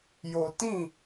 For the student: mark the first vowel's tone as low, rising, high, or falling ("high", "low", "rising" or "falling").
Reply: low